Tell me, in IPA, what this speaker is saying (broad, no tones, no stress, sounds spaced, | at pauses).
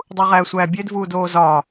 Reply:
dˤ u ʁ æː sʷ æː bʲ e d v uː d oː z ɒː